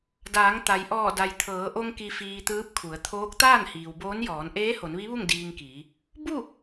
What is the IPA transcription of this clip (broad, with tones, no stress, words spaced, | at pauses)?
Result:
daː˩˧ŋt̪a˩jʔɔː˧˩ da˩jt̪ʰɤː˩˧ʔo˧ŋ ki˧fiː˧t̪ɯː˧˥p̚kʰu˩˧ə̯ t̪ʰoː˧˥k̚ t̪aː˥˨nhiː˩wboː˧˥njɔː˩˧n ʔeː˧˥ho˩˧nʋi˧˥ʋu˥˨ŋ diː˧ŋkiː˩˧ | bu˥˨